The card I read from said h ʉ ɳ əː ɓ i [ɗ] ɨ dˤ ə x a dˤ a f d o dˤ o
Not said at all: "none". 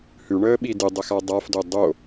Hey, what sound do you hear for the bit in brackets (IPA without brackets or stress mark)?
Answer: d